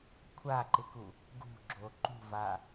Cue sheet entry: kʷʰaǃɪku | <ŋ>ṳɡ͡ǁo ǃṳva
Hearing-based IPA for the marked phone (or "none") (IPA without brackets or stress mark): ɡ